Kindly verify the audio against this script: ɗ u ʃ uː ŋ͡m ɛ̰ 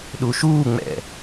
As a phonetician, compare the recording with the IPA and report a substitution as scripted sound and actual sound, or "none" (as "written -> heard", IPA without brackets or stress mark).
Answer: none